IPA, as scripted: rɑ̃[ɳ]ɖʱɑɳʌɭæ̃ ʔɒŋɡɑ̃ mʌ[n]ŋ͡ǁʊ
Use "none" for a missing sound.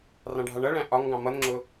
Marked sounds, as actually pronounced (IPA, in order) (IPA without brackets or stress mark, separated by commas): none, n